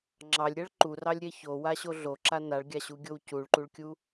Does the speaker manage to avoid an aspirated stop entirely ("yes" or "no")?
yes